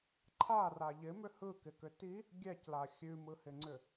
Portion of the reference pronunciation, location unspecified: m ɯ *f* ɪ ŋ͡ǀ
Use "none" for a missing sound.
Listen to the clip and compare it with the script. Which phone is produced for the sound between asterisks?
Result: h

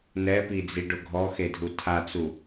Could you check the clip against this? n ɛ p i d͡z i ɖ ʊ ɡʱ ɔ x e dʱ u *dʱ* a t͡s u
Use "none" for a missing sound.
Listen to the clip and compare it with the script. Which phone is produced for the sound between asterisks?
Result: tʰ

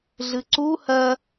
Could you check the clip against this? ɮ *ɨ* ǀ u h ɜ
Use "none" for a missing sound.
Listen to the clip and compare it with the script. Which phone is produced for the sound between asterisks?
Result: ɨ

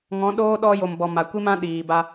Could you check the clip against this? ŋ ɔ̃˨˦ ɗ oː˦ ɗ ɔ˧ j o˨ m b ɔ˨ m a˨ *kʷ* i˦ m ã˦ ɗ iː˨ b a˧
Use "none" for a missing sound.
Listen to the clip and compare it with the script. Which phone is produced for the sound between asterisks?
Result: kʷ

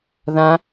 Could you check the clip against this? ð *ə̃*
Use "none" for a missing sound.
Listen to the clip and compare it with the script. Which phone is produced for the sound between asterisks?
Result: ã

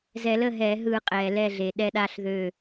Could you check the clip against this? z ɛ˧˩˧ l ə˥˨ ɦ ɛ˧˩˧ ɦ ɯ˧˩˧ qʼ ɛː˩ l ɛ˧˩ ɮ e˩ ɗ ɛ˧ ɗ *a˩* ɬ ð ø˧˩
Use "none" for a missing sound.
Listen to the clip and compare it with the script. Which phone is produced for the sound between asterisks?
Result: a˧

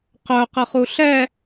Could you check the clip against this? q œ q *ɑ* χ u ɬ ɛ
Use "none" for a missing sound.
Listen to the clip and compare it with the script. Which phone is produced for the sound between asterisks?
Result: ə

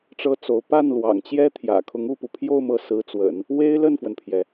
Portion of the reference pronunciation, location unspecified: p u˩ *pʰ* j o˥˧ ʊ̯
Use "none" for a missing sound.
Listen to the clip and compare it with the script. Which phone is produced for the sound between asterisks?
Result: pʰ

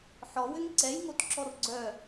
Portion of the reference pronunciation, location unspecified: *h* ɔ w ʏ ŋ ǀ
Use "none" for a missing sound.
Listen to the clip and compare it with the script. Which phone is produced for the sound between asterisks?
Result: ħ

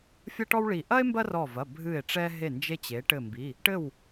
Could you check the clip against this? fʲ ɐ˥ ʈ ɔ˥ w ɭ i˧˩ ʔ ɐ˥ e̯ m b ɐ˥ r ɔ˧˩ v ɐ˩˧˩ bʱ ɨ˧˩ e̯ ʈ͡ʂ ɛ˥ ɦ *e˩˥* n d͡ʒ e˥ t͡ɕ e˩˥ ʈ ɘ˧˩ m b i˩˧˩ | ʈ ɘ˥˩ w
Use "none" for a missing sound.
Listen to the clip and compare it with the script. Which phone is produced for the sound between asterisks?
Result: e˥˩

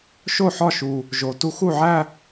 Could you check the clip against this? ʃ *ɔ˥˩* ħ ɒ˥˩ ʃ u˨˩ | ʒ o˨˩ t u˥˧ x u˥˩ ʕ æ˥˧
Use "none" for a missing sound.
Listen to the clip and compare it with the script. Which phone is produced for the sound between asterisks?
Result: o˥˩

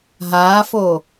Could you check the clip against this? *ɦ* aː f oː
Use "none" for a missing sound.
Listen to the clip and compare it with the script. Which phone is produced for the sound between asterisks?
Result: ɦ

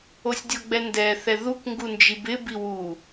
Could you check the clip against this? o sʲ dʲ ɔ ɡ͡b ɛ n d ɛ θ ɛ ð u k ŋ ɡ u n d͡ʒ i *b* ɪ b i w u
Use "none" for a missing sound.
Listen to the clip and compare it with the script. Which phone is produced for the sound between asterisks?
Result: b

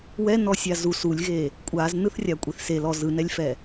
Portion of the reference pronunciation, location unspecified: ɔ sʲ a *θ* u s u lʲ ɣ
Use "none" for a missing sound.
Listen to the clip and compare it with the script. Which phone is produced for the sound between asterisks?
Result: z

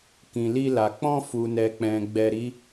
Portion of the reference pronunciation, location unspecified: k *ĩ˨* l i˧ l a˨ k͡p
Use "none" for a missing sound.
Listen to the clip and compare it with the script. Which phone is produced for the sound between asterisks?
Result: ĩ˨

